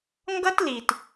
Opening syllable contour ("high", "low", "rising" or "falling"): high